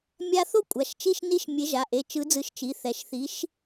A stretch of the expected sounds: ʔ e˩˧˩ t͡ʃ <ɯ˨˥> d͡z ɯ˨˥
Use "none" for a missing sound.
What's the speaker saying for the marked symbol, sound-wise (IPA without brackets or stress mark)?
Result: ɯ˨˥